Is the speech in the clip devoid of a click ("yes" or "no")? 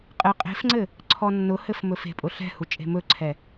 no